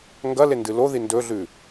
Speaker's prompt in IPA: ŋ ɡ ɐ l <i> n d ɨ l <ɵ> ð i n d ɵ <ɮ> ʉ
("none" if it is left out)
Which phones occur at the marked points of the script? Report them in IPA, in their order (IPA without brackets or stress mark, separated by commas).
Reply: e, o, ɮ